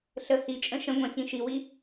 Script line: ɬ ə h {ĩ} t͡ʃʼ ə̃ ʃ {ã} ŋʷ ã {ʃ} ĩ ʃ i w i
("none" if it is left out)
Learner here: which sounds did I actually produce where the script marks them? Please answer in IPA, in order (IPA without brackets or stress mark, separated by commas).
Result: i, ə̃, ç